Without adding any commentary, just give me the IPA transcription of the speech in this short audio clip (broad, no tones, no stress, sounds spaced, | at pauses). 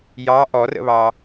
j ɑ ʔ ɔ r ə̰ β ɑ